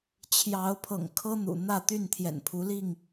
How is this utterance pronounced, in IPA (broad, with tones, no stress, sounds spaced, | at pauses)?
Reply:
t͡ɕʰ j ɑ˨˦ ʊ̯ pʰ ɤ̰˨˩ ŋ kʰ ɤ˦ n̪ ṵ˨˩ n̪ ä˥˨ t̪ y˥˨ n t̪ʰ j ɛ̰˨˩ n pʰ u˨˦ l i˥˨ ŋ